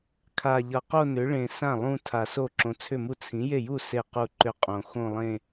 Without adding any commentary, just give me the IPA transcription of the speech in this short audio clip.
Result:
kʰ a˨˩ ʎ ʌ˨˩ q o˥˧ n ʏ˩˥ ɭ ẽ˨˩ s ã˥˩ lˠ ũ˥˧ tʰ a˨˩ s o˥˩ ǁ õ˨˩ t͡sʰ ʏ˥˩ m u˥˩ t͡sʰ ĩ˩˥ j e˥˩ j u˥˩ s e˥˩ q u˥˩ ǃ ʏ˥˧ qʼ õ˨˩ x õ˥˧ lˠ ẽ˥˧

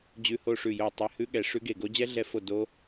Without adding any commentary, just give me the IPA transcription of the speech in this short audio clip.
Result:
d͡ʑ ʉ˦˥ h o˦˥ ʂ ʉ˦˨ j o˦˨ tˤ e˦˨ h ʉ˦˥ ɠ ɛ˦˨ ʂ ʉ˦˥ ɡ e˦˨ ɡ o˦˥ d͡ʑ ɛ˦˥ ɮ ɛ˦˨ f o˦˨ d o˦˥

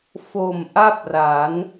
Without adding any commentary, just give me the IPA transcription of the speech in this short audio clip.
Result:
f o˨˩ m ʔ a˥˩ p̚ r a˩˦ n

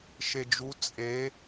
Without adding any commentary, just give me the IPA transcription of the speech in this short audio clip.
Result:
ʃ e d͡ʒ u t͡sʼ e

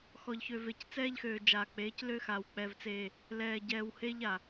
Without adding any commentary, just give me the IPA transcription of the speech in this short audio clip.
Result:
x ɔ˨ ʎ ç ø˨ v e˨ c t͡s ɛː˦ ʎ x øː˨ d͡ʒ aː˨ k͡p eː˨˦ c l ø˦ x a˨ w k͡p ɛ˨ v t͡s eː˨ | l ɛː˨ ɟ ɛː˨ w h e˦ ʎ a˨

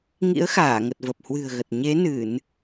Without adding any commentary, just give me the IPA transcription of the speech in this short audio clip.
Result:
ŋ ḭ˧˥ ə̯ x aː˧˩ ŋ ə˨˩ t̚ v ə˨˩ p̚ h w ɨ̤˨˩ ə̯ ɣ ə˨˩ t̚ ɲ e˨˦ n ɨ˧˩˨ n

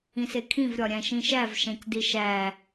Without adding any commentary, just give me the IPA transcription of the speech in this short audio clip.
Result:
ĩ s e kʰ ĩ v ɾʲ ɒ ɾʲ æ̃ ʃ ĩ ʃ æ v ʃ æ̃ c d i ʃ æ

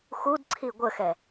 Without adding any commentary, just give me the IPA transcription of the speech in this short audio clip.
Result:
x u d ǀʰ i ɡʷ ə x ɛ

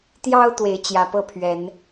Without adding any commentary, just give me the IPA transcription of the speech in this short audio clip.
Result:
t̪ j ɑ˦ ʊ̯ t̪ w e˨˦ ɪ̯ t͡ɕ j ä˨˦ p ɤ˥˨ pʰ ɥ ɛ˨˦ n

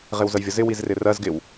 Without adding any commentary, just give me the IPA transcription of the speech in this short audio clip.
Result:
ʁ ɪ w z ə j vʲ ə z ɪ w i z r ɪ r ɜ z ɡ ɪ w

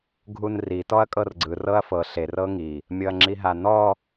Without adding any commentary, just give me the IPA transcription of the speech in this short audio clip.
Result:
ɡʱ u n r i t ɔ ɐ̯ kʼ ɤ r ɡ͡ǀ ɯ r ɤ ɐ̯ f ɤ ɬ e r ɤ ŋ i | mʲ ɤ ɐ̯ ŋ͡ǁ i ɦ a n ɔ

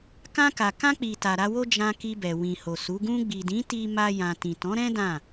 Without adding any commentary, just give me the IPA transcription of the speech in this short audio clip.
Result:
k ã˧ k a˨ k ã˧ k͡p i˨ t a˨ ɾ a˧ w o˦ d͡ʒ ã˧ k i˧ b ɛ˨ w ĩ˨ h o˨ s u˨˦ ɡ ũ˧ ɡ͡b i˨ d ĩ˨˦ t i˦ m a˦ j ã˧ t ĩ˨ t ɔ̃˨˦ ɾ ɛ̃˦ d ã˦˨

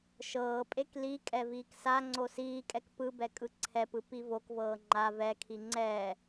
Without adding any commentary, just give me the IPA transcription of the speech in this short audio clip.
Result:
ʃ ɤː pʼ e k l i kʼ ɛ v iː k s a ŋ͡ǀ o s iː kʼ ɛ k p ɯ b ɛ kʼ ɯ ǀʰ ɛ p ɯ p i v o k v ɤː ŋ͡ǃ a v ɛ kʰ i ŋ͡ǀ ɛː

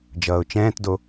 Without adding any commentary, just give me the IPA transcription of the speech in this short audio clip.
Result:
d͡ʒ ʌː ʊ̯ t͡ʃ ɛ̃ː t d o

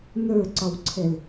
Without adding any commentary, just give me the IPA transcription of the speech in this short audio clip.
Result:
n ə˞ ǀ ɒ w ǀʰ ɛ l

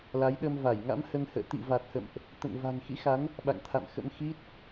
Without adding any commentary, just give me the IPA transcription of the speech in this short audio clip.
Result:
l a˨˦ j ɗ ə˧ m v a˧˩ j ŋ a̰˧˥ m h ə˧ n h ə̰ː˧˨ t̪ ḭ˧˨ v a˨˩ t̚ h ə̰˧˨ m ʔ | t̪ ə̰˧˨ n v a̤˨˩ ŋ x ḭ˧˥ x a˨˦ n | ɓ a̰˧˨ ŋ t̪ʰ a̰˧˨ m x ə̰˧˥ m x i˦˥ t̚

